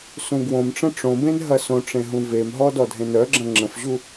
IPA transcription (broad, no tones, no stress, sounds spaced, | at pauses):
s ũ ɡ w õ m ʈ͡ʂ ə̃ ʈ͡ʂ õ b ẽ n ɦ ɐ s õ ʈ͡ʂ ẽ ɦ ũ v e m ɦ ɔ d ɔ dʱ ẽ n œ ɡ͡ǁ ɐ̃ ŋ͡ǁ ə̃ f ʑ u